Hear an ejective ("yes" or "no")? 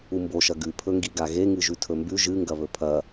no